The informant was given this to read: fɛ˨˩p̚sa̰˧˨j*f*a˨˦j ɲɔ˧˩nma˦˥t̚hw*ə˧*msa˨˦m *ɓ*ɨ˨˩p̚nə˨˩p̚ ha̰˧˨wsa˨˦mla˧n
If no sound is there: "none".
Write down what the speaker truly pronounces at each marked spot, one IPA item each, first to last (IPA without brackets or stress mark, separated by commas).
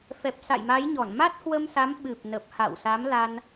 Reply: m, ə˧, ɓ